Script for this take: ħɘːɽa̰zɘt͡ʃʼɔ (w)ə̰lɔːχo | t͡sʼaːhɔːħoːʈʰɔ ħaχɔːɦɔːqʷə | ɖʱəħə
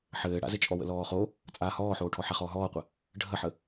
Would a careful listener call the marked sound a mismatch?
no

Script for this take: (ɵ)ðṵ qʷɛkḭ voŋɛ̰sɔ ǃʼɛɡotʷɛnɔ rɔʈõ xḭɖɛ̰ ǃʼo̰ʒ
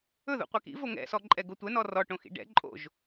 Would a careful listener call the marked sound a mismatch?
no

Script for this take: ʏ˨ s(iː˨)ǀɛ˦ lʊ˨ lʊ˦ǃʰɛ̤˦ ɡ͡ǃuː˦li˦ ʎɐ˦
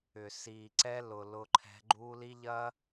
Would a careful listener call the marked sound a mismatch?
no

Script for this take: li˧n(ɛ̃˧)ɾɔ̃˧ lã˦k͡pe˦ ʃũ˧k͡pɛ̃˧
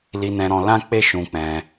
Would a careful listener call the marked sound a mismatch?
no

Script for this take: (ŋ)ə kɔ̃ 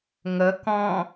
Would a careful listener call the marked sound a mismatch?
no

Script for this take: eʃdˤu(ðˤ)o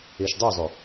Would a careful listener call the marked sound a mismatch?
yes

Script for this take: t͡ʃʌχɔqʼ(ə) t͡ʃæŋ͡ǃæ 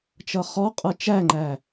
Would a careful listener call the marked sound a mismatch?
yes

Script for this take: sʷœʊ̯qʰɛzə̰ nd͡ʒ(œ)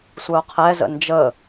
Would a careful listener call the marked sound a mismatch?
yes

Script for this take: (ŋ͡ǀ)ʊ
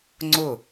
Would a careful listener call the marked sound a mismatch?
no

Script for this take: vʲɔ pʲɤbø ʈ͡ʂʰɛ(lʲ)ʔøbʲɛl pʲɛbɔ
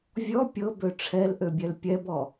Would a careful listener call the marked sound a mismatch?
yes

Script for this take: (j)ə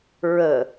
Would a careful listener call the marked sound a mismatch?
yes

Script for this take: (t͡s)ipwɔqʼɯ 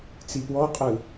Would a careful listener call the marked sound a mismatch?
no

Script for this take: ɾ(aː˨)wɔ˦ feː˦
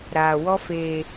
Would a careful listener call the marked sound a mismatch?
no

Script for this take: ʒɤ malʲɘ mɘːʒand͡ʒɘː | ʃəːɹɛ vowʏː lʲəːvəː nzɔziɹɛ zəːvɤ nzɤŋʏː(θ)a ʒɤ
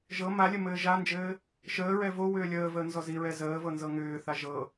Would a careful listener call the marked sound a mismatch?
no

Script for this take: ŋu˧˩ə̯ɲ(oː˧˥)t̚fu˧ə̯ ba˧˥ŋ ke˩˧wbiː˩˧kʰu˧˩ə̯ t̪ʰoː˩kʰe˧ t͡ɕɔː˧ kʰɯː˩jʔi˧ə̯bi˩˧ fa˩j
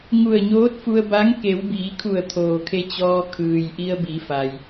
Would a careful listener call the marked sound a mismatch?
no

